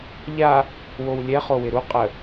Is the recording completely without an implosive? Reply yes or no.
yes